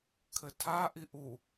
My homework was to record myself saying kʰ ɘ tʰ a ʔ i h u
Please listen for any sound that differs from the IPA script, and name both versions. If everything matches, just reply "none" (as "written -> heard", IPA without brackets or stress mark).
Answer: h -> ʔ